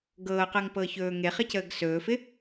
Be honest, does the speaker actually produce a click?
no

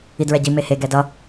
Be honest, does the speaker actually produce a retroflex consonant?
no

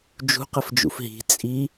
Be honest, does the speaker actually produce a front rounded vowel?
no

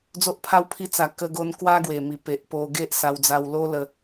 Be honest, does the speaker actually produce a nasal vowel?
no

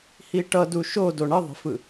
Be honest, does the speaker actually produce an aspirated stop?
no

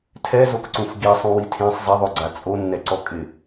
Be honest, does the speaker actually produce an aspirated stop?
yes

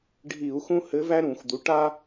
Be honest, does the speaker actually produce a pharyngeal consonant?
no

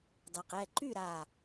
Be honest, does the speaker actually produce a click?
yes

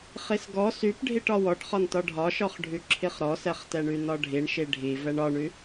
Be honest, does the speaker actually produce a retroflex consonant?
yes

